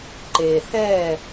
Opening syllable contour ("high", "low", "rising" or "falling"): low